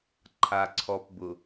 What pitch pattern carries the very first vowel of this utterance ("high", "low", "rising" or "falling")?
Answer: low